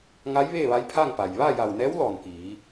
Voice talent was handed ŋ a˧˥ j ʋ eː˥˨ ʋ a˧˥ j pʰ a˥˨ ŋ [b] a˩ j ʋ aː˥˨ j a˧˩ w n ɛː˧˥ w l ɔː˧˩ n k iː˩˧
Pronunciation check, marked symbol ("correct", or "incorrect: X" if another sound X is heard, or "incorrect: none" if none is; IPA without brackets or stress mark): incorrect: p